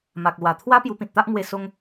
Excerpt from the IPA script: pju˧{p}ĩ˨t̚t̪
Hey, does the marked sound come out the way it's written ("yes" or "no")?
yes